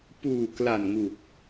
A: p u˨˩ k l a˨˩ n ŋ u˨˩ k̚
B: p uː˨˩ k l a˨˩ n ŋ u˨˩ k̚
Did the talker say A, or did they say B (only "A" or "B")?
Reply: B